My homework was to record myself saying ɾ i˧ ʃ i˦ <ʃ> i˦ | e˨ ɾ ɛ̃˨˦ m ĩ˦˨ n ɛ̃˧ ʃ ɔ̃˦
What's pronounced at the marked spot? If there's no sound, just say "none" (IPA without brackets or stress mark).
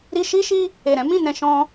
ʃ